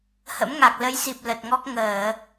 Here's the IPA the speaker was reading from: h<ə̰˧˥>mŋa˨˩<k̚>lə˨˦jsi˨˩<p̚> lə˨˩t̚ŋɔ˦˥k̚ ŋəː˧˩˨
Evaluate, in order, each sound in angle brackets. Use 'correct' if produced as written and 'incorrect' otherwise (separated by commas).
correct, correct, correct